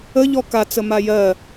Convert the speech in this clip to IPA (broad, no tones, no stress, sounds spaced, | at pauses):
ə ʎ ɔ k a t͡s ə m a j ɜ